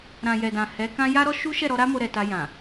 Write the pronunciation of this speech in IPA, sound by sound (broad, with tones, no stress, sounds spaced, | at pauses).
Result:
ɾ ã˨ j ɛ˨ d ã˨ h ɛ˨˦ k ã˦ j a˦ ɾ ɔ˦ ʃ u˦ ʃ ɛ˦˨ ɾ ɔ˧ ɾ a˦ m o˧ ɾ ɛ˨ t a˧ j ã˨